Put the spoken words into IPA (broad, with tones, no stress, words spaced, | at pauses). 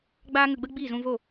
ɡ͡baː˦ŋə˧ɡ͡bə˦ ɡ͡bi˦˨zũ˧vo˦˨